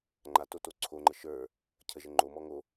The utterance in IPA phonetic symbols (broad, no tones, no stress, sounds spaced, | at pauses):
ŋ͡ǃ a t o t o ǀʰ o ŋ͡ǃ ə ʃ ə˞ | cʰ ə ʒ ə ŋ͡ǃ o m ɔ ŋ o